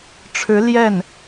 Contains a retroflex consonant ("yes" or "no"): yes